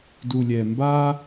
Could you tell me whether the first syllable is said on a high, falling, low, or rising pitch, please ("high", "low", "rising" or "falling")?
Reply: low